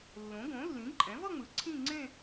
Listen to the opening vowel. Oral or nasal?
nasal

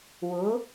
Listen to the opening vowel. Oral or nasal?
oral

